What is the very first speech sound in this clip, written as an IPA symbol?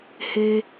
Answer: h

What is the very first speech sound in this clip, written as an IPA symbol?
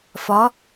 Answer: f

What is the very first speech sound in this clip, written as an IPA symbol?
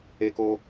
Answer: e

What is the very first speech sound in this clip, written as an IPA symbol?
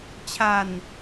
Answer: t͡ɕʰ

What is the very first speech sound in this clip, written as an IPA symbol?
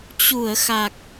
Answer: t͡ɕ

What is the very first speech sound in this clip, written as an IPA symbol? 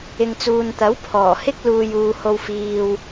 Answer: ɪ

